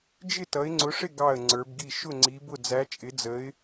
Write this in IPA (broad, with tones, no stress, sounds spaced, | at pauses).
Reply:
d͡ʒ ɪ˥˨ t ʌ˨˦ ɪ̯ ŋ͡ǀ ʊ˨˦ ʂ ɪ˥˨ ɡ ɑ˥˨ ə̯ ŋ͡ǀ ə˞˨˦ b ɡ i˥˨ ʃ ʊ˥˨ ŋ͡ǀ i˨˦ b ʊ˥˨ d͡z æ˨˦ t͡ʃʼ ɪ˨˦ d͡z ə˨˦ ɪ̯